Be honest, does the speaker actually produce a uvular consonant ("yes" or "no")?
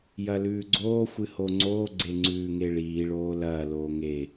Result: no